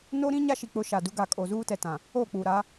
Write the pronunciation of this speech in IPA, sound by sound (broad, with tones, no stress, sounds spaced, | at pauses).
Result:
n o˦ ɾ ĩ˦ ɲ a˦ ʃ i˨ k͡p ʊ˨˦ ʃ a˨ d u˦ ɡ a˨ kʼ o˨ z uː˦ t ɛ˨ t ã˨ | o˦˨ k͡p u˨ ɾ a˨˦